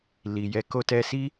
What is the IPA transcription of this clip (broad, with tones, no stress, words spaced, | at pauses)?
li˨jɛ˨˦ ko˧tɛ˧si˦